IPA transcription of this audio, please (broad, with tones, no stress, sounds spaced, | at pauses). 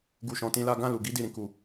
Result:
ɡ u˧ ʃ ɔ̃˧ t ĩ˦ l a˦ ɡ ã˦˨ l u˨ ɡ i˧ d i˨ ɾ ĩ˨ k u˨